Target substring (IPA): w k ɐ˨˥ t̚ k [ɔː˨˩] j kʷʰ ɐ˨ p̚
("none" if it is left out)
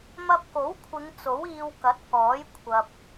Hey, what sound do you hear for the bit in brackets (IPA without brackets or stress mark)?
ɔː˨˥